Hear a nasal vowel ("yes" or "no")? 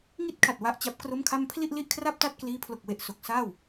no